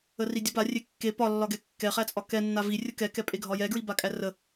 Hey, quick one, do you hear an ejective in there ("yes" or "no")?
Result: yes